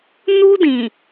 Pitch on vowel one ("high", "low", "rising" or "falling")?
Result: high